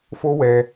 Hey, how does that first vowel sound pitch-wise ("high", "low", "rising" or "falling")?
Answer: high